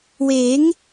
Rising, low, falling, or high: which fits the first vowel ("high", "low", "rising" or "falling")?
rising